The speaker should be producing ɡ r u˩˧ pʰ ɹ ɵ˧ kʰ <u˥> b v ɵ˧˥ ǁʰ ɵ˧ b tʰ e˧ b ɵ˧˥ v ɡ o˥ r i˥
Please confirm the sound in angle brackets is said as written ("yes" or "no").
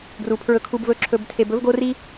no